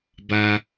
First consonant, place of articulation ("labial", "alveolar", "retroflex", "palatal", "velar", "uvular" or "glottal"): labial